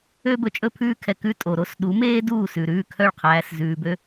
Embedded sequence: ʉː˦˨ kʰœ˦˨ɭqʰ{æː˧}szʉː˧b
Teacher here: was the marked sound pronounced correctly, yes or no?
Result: yes